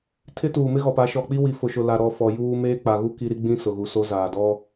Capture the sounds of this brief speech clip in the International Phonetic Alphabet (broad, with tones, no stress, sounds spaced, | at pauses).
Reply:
tʰ ɪ˦ t uː˨ m ɪ˦ ɣ ɔ˨ p a˨˦ ʃ ɔ˨ k͡p i˦ w i˨ f ʊ˨ ʃ ʊ˨ l a˨ ɾ ɔ˨ f ɔ˨ j uː˦ m eː˦ k͡p a˨ ɣ u˦ k i˦ ɾ i˦ ɡ͡b ĩ˦ s ʊ˨ ɣ u˨ s o˦ z aː˨ d ɔ˦